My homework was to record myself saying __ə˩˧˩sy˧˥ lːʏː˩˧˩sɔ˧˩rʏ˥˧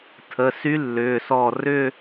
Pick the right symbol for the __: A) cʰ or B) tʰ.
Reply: B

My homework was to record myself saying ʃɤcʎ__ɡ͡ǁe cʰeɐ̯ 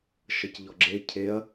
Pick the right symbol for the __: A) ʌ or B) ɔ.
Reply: B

